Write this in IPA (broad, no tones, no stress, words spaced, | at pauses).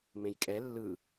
mẽjkʼɛ lːɯ